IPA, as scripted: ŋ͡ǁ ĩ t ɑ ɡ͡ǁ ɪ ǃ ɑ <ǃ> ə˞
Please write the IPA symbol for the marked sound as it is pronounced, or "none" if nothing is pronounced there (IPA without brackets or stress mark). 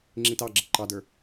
d